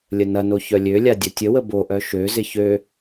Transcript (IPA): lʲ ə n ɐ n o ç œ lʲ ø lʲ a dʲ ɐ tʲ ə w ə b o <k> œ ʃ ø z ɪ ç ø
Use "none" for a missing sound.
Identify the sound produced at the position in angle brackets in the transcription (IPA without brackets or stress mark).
ʔ